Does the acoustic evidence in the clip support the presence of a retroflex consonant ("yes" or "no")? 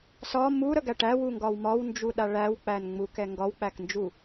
yes